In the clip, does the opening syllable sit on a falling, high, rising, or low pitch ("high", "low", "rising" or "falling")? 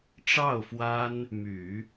falling